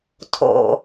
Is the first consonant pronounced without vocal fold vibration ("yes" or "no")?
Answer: yes